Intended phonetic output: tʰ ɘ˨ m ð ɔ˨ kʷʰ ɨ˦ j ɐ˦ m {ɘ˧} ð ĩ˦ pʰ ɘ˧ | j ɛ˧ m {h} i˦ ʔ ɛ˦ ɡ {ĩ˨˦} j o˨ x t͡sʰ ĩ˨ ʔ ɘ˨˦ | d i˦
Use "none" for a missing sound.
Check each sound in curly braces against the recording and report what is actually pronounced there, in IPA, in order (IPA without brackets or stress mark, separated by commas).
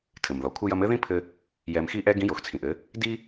ɘ˦, x, ĩ˨˦